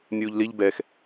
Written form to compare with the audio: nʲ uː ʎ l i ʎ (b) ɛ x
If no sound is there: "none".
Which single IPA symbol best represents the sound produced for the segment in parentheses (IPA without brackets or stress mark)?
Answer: b